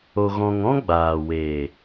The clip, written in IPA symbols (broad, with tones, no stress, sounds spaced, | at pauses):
o˧ ɣ ɔ̃˧ ŋ ɔ̃˦ ɡ͡b aː˨ w e˨